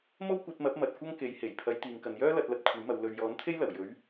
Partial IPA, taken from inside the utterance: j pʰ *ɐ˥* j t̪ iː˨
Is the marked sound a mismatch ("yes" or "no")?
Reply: yes